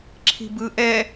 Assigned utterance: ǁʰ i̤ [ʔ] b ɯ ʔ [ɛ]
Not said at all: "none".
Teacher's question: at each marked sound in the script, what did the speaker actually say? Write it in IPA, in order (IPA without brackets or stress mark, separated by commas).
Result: none, ɛ